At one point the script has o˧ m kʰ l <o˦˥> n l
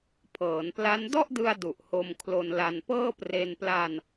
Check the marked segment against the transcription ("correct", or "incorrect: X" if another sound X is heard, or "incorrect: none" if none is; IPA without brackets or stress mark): incorrect: o˧